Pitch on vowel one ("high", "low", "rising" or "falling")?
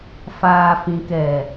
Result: low